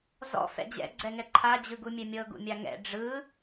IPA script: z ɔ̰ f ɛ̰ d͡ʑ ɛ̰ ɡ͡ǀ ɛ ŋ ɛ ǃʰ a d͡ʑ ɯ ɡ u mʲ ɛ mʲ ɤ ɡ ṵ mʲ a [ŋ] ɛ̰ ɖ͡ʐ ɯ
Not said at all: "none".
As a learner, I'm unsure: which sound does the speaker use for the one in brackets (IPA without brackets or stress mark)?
ŋ